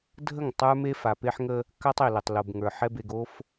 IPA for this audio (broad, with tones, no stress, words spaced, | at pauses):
dʱə˦˨ŋ tˤə˞˦me˦ fa˨pe˦ħŋə˦ | ka˦tˤ e˨lə˨tˤ lo˨bŋə˞˨ ħɛ˦be˨ɡo˦f